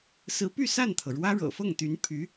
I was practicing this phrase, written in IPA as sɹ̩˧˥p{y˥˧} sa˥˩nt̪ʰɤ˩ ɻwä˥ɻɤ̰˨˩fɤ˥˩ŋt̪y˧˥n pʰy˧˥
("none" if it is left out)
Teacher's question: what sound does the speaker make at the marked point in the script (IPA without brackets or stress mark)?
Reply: y˥˧